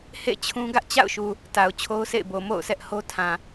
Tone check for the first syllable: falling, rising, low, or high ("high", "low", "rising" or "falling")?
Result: falling